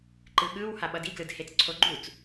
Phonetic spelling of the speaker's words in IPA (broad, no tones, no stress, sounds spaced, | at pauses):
ǃ ɯ ɠ ɯ w h a ɓ ʌ d i ɡ l ɯ d h e t͡s ǀʰ o ɡ͡ǃ u t͡s